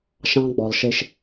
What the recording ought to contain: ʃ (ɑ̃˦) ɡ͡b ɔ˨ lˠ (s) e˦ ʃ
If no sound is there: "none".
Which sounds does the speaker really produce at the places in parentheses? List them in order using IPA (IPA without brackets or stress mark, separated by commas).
ɑ̃˦, ʃ